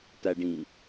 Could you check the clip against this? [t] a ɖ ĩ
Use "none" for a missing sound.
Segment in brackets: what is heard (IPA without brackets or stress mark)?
t